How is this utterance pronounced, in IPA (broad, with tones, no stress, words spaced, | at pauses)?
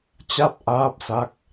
t͡ɕa˦˥t̚ʔaː˦˥p̚sa˦˥k̚